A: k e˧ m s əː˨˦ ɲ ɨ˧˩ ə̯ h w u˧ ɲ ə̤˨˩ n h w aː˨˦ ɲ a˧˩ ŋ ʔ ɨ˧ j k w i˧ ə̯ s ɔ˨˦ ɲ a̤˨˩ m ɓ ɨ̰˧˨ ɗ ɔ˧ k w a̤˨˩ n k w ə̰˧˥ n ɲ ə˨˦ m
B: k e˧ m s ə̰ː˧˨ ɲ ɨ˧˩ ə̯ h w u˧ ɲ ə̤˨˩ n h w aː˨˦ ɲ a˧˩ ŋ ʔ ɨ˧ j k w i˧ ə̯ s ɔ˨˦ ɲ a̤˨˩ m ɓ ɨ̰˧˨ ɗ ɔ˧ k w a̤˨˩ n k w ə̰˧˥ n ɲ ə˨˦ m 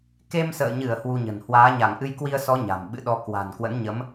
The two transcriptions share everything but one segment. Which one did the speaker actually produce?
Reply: B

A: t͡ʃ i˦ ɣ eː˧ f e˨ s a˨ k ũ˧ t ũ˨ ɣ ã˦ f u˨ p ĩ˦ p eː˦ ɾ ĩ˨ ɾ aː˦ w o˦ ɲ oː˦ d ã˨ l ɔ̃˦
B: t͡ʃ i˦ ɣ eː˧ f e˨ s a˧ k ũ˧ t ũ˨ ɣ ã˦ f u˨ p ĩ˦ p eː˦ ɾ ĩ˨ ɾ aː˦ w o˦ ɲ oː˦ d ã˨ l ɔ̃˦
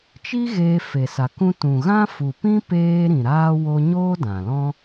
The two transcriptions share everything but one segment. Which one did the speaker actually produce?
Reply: A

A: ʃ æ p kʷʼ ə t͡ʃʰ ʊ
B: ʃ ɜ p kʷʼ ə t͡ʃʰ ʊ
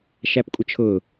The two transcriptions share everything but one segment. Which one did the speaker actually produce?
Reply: A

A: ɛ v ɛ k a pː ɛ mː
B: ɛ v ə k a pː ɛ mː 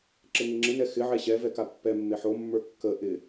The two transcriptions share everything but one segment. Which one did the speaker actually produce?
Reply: A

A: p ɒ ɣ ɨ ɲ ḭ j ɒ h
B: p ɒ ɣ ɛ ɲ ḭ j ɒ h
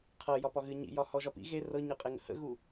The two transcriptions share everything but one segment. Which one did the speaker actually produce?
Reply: A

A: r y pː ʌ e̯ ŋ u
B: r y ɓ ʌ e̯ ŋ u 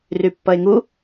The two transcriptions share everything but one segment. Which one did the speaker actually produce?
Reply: A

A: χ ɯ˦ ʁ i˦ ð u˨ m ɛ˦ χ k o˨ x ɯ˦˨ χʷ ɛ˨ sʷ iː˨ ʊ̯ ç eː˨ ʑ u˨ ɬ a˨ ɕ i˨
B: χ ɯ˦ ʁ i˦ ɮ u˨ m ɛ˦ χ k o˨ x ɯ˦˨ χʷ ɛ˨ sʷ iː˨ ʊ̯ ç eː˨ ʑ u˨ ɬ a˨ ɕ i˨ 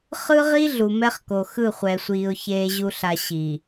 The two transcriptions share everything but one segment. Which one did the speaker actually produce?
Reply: B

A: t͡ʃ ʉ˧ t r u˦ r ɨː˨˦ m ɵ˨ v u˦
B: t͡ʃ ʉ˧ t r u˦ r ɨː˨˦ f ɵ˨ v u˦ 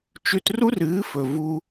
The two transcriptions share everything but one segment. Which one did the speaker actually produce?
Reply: B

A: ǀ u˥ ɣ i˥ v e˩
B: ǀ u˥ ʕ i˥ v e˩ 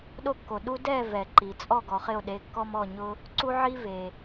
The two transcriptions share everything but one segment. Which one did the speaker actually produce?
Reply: B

